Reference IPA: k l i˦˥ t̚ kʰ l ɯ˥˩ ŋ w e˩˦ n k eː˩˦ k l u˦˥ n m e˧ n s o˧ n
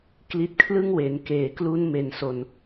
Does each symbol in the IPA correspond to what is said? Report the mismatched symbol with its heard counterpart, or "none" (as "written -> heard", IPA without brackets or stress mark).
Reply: none